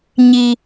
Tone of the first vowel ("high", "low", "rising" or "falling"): high